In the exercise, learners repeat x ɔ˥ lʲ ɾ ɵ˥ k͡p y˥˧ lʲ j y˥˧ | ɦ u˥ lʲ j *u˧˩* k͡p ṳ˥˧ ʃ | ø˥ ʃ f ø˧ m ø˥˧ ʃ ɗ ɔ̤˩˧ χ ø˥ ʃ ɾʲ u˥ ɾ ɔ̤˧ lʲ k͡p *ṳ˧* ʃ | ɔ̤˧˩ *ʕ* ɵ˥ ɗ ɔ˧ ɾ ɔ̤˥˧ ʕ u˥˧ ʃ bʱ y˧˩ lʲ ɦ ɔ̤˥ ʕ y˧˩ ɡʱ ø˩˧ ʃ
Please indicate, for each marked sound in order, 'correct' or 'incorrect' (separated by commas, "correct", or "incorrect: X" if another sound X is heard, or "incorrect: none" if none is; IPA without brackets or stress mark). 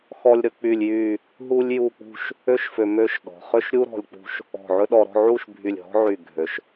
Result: incorrect: u˥˧, correct, correct